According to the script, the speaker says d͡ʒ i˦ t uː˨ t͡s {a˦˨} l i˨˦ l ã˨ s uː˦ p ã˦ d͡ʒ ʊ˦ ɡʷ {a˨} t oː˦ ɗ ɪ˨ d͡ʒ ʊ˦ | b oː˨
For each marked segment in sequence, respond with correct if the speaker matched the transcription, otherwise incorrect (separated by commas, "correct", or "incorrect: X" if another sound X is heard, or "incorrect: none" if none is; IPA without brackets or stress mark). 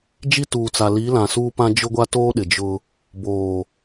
incorrect: a˨, incorrect: a˦